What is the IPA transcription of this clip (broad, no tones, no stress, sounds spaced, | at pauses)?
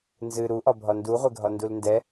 n z ɨ ɾ u ʔ ɒ bʱ ɒ n d u ʁʷ ɛ ɡʱ ɒ n d u l n d ɛ